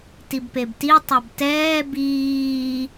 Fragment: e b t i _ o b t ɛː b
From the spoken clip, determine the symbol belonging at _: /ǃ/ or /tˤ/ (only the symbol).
tˤ